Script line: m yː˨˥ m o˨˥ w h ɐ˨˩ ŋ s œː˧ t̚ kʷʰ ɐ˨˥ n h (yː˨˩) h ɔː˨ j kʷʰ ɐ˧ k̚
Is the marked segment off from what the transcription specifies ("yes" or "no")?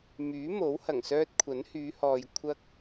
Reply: yes